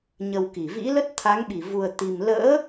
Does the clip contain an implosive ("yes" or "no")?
yes